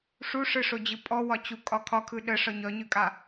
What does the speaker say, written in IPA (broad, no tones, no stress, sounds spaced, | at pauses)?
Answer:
ʂ u ʂ ɯ ʂ o d͡ʑ ɯ pʼ ɔ w ɒ t͡ɕ u kʼ ɒ kʰ ɒ kʰ ɯ ɗ ə ʂ ɒ ɲ ɒ ɲ ɯ kʼ a